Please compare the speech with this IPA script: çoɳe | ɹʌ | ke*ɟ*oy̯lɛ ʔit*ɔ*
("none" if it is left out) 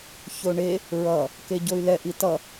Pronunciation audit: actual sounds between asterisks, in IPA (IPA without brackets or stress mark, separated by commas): ɟ, ʌ